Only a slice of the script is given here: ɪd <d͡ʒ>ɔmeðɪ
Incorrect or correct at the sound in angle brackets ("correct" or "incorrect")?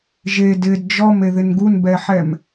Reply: correct